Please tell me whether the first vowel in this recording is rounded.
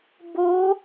yes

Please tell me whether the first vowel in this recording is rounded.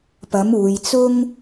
no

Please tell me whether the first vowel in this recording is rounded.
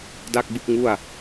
no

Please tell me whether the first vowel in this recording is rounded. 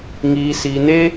no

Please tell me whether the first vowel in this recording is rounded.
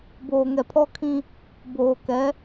yes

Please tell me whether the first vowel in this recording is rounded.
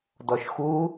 yes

